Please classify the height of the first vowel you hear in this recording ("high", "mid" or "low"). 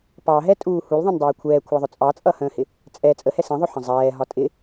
low